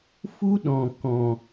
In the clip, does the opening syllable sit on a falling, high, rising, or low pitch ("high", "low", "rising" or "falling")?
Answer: high